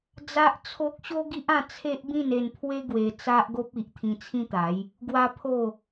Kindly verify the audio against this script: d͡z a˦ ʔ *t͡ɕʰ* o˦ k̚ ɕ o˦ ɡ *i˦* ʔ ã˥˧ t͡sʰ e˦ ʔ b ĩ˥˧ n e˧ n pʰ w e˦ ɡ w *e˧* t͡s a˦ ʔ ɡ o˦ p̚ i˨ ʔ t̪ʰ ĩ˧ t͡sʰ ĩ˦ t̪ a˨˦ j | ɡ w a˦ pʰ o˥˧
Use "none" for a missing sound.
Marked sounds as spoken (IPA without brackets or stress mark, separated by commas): t͡sʰ, i˦, e˧